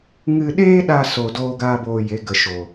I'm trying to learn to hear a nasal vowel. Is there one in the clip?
no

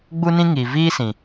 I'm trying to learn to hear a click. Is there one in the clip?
no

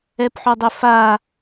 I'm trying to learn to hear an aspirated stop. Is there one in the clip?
no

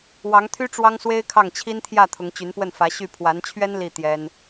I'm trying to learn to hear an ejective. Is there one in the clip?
no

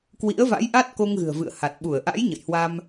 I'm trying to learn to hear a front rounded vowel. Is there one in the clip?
no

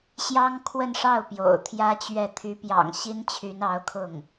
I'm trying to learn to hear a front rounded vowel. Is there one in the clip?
yes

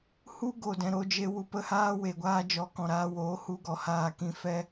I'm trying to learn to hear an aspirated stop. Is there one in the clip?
no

